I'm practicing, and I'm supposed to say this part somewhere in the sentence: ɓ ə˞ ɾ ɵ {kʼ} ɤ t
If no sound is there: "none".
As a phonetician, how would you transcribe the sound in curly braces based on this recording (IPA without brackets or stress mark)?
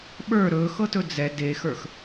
x